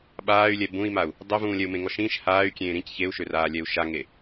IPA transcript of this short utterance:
ɓ aː y̯ lʲ ɛ b ũ i̯ m a u̯ | dˤ ø v ũː lʲ ɛ u̯ m ẽ ŋ ɔ ʃ ĩː ʃ h aː y̯ kʲ ẽː ɾ ĩ c ç e u̯ ʃ ø r aː lʲ ɛ u̯ ʃ a ŋ e

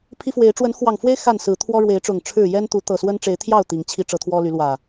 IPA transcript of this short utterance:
pʰ i˦ f w e˨˦ ɪ̯ ʈ͡ʂ w ə˨˦ n x w ɑ˨˩ ŋ f w e˦ ɪ̯ x a˥˨ n s ɹ̩˨˦ t̪ʰ w ɔ˦ ɻ w e˨˦ ɪ̯ ʈ͡ʂ ʊ˨˩ ŋ ʈ͡ʂʰ ɻ̩˥˨ j ɛ˦ n t̪ u˨˦ t̪ ɤ˨˩ s w ə˦ n ʈ͡ʂ e˨˦ ɪ̯ t̪ʰ j ɑ˥˨ ʊ̯ t̪ i˨˦ ŋ t͡ɕʰ i˨˦ ʈ͡ʂ ɤ˨˦ t̪ʰ w ɔ˦ l y˨˦ l w ä˨˩

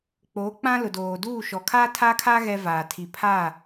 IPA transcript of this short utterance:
k͡p oː˨˦ k͡p ã˦ l ʊ˨ d oː˨ d uː˦˨ ʃ ɔ˨ kʰ aː˦ tʰ aː˦ kʰ a˦ ɣ ɛ˦ v aː˨ tʰ i˨ pʰ aː˦˨

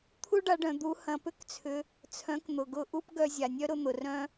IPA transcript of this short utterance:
t̪ʰ u˦ ɖ a˧ ɖ œ̃˨ d̪ u˨˦ h ɐ̃˨ p ʏ˦ k t͡sʰ ʏ˧ | t͡sʰ œ̃˨˦ k n̪ ʊ˨ ɡ ʊ˧ ʔ u˦ p ɡ œ˧ zʲ a˨ nʲ œ˦ ɾ ʊ˧ n̪ ʊ˨ r œ̃˦

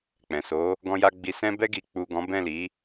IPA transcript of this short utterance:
k͡p ɛ̃˨ s o˨˦ | ɡ ɔ̃˨ j a˨ ɡ͡b i˨ s ɛ̃˧ b ɛ˧ ɡ i˨ k͡p u˨ ɡ ɔ̃˨˦ b ɛ̃˦˨ l i˨˦

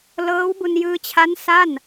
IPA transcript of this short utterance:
l ɤː˦˥ w b u˧ n j ɯː˧ t͡ɕʰ a˦˥ n s a˥˩ n

